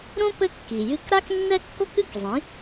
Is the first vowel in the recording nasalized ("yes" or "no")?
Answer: yes